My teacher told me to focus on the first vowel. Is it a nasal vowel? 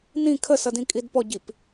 yes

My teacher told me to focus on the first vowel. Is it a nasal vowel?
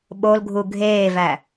no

